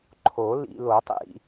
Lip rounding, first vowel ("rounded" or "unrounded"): rounded